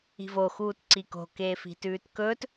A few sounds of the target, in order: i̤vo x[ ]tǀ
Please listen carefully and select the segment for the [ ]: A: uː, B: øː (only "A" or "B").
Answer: A